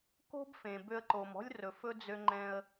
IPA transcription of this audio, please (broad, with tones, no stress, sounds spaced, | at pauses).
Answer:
k o̤˥ b f ẽ˩ b ø˧ ə̯ ǃ o˩ m ɔ̤˥ lʲ r ɵ˩ f ɵ˥ d͡z ø˧ ŋ͡ǃ ɛ̃˧ ə̯